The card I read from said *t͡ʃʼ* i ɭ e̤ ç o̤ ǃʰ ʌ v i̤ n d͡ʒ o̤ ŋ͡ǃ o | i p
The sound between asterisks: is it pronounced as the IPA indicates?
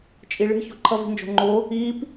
yes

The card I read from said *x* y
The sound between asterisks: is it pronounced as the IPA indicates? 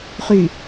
no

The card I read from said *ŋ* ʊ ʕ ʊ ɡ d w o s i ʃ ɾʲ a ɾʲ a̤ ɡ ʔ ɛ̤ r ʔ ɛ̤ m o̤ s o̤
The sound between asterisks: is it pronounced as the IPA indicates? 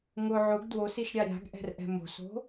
yes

